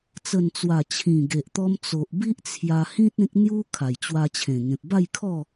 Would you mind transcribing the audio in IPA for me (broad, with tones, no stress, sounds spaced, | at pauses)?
t͡s ə˨˩ n t͡s w a˨˩ t͡ɕʰ ĩ˨˩ ɡ e˨ ʔ t̪ ɔ˧ m t͡s o˨ ʔ b i˦ ʔ t͡sʰ j a˧ h ĩ˦ t̚ ẽ˦ k̚ n̪ j u˦ kʰ a˨˩ j t͡ɕ w a˧ t͡ɕʰ ẽ˨˩ ŋ ẽ˨ p̚ b a˥˧ j kʰ ɔ˥˧